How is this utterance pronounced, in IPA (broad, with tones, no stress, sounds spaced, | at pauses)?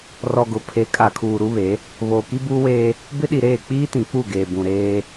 r ɔ˨ ɡ ʊ˨ pʰ e˨˦ kʼ a˨ kʰ uː˨ ɾ u˦ β e˨˦ | β oː˨ k i˦ b uː˦ w eː˦ | b ɪ˦ ɗ i˨ ɾ eː˦˨ k͡p iː˦ t ĩ˨ k͡p u˦˨ ɡ eː˨ b ũ˨ ɾ eː˦